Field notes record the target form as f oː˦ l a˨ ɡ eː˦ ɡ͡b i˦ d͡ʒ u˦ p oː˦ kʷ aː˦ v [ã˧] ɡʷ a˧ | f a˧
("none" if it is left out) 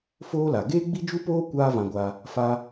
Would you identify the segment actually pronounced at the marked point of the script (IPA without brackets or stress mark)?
ã˧